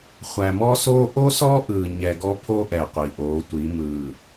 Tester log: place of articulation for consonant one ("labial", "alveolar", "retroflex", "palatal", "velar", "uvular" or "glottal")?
uvular